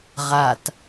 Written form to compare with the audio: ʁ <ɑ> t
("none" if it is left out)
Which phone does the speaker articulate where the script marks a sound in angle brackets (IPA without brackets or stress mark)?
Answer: a